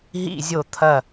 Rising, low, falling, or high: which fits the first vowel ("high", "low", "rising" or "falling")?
falling